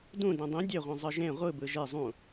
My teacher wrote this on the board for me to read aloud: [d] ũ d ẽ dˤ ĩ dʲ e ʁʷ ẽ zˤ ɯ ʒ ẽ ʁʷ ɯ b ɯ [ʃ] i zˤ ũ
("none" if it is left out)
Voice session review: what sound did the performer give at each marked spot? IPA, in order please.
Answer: d, ʒ

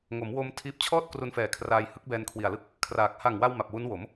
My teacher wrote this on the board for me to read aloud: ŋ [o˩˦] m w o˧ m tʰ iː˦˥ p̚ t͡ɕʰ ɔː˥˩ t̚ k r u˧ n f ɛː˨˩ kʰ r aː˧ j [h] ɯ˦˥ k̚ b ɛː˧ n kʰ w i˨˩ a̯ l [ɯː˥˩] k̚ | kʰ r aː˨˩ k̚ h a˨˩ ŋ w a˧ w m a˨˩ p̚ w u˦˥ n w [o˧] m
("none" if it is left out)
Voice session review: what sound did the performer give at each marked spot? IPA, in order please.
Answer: o˩˦, h, ɯ˥˩, o˩˦

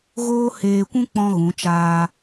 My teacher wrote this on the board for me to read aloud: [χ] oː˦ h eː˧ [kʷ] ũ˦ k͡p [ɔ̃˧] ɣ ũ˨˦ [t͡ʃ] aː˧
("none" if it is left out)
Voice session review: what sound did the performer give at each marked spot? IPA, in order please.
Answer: ɣ, kʷ, ɔ̃˦, t͡ʃ

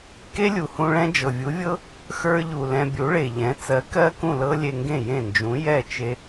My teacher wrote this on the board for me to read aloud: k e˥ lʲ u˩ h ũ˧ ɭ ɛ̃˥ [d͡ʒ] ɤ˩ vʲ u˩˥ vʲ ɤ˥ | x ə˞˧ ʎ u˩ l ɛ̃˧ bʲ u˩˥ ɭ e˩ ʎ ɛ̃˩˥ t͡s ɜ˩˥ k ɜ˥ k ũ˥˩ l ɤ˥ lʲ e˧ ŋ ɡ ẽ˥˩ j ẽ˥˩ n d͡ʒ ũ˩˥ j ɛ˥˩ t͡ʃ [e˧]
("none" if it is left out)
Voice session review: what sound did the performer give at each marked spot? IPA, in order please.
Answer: d͡ʒ, e˧

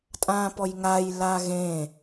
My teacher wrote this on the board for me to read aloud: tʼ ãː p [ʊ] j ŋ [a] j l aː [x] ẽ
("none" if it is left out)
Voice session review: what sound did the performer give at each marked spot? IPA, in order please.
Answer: ɔ, a, ɣ

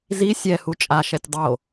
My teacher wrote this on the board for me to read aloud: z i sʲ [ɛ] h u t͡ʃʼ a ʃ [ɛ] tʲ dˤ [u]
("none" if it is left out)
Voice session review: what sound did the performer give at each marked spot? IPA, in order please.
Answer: ɛ, ɛ, o

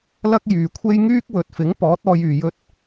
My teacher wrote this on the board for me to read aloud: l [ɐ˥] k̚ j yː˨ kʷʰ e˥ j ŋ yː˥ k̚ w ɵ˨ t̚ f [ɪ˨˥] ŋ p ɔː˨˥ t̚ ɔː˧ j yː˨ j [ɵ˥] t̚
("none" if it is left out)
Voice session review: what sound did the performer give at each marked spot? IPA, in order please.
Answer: ɐ˥, ɪ˨˥, ɵ˥

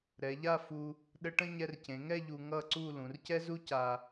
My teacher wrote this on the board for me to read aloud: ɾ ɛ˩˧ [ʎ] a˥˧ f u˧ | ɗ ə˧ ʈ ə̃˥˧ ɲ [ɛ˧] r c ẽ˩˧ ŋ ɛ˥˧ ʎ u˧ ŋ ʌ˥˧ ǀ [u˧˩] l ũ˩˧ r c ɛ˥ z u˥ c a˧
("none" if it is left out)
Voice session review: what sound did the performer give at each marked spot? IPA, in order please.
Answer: ʎ, ɛ˧, u˥˧

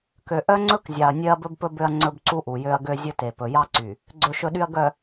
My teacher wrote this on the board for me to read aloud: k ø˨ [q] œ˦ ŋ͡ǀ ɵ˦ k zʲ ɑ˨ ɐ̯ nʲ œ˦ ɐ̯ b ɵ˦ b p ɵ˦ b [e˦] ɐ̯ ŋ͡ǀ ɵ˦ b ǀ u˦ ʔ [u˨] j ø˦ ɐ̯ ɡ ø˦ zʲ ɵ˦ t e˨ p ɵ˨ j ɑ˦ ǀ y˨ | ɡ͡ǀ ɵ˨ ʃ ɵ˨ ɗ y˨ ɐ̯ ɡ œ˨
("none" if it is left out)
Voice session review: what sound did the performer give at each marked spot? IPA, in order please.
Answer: ʔ, ø˦, u˨

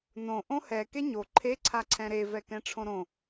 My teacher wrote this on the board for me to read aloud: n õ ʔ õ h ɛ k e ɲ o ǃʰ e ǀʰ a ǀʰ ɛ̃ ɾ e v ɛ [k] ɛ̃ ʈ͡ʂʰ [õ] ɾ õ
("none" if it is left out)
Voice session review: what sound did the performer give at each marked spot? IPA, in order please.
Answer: k, õ

